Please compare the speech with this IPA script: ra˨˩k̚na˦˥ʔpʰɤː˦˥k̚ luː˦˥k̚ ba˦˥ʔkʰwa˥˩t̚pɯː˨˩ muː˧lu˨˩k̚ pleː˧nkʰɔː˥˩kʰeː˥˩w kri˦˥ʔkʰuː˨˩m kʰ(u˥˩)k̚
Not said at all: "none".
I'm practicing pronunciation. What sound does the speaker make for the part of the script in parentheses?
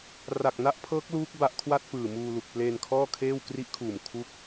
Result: u˥˩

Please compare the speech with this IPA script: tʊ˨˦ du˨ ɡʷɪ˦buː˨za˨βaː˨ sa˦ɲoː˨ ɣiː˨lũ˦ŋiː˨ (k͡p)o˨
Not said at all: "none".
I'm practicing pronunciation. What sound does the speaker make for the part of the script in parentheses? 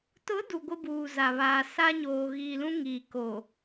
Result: k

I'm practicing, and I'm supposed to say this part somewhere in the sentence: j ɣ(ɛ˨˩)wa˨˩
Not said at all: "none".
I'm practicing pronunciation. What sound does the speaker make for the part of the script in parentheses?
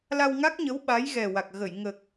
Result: ɛ˨˩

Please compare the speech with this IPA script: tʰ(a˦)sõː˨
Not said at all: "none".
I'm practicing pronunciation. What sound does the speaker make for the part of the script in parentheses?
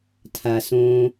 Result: a˩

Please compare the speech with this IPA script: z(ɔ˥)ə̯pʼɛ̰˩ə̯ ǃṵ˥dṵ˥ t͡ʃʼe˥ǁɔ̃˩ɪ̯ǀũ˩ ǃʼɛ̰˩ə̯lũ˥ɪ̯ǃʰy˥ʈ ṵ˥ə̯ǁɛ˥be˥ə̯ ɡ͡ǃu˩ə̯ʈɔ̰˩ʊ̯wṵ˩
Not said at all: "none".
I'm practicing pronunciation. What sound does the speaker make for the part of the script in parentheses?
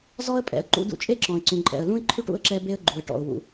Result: ɔ˥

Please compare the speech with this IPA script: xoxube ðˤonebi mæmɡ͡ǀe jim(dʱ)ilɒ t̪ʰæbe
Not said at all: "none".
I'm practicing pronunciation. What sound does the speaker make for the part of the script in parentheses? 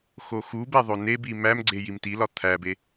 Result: t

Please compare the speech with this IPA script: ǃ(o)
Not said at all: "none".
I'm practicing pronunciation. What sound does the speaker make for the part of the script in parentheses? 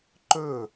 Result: ɵ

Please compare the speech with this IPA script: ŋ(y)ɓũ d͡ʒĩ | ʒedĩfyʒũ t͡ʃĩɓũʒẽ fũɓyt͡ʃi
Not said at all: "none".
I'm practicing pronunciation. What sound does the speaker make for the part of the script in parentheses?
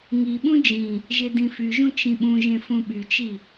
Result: i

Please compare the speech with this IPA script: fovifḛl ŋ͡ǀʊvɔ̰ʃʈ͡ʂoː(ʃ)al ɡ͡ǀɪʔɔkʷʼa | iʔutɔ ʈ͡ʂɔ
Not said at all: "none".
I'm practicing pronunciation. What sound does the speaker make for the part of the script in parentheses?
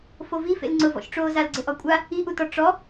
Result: z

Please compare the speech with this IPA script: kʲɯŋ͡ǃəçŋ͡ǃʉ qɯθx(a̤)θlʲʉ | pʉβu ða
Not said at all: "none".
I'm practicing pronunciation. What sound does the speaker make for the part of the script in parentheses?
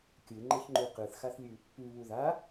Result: a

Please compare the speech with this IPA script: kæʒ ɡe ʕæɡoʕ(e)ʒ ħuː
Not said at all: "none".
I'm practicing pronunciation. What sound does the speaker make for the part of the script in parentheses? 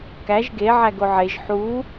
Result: e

